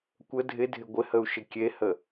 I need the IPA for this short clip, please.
kʷ ə dʱ ɪ dʱ ɪ ɡʷ ɪ h ə u̯ ʃ ɪ kʲ e h ə

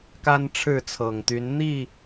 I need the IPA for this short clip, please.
k a˦ n ʈ͡ʂʰ ɻ̩˥˨ t͡sʰ ɤ˨˩ ŋ t̪ y˨˦ n n̪ i˥˨

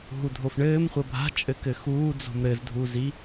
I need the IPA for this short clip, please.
ɦ u dʱ o f ɳ ɘː m χʷ ɐ bʱ a̤ t͡ʃʼ ɘ k ɘ x uː d͡z o̤ m ɾ ɘ z dʱ u z i

